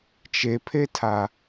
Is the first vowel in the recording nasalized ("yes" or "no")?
no